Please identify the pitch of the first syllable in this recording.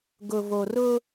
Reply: low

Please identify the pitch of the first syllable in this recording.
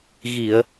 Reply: low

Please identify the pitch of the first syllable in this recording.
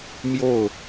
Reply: falling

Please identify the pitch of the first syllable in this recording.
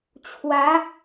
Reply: rising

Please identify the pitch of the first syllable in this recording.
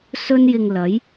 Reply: high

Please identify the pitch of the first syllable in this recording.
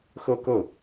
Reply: falling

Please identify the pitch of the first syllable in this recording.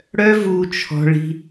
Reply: high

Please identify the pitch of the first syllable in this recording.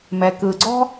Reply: low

